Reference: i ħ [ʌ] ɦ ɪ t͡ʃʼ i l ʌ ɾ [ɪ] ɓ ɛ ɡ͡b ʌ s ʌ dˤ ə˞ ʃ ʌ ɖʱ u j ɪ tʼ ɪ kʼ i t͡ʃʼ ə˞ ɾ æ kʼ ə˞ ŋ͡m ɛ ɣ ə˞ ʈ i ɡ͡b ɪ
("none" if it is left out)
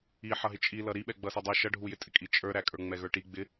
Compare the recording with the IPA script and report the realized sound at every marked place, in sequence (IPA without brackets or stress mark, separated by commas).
ʌ, i